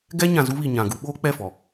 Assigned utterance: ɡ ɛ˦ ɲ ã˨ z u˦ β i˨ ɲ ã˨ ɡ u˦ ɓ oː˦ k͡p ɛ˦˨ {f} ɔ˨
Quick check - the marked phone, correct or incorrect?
correct